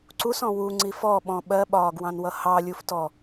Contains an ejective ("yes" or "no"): no